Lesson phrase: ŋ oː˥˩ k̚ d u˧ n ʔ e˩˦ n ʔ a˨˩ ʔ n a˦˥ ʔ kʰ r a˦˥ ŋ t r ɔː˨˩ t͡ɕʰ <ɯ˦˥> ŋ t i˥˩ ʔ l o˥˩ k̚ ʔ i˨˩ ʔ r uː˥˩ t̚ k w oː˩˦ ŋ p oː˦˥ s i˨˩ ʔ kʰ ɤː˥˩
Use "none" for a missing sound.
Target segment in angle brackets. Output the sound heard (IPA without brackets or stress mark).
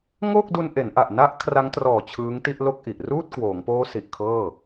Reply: ɯː˦˥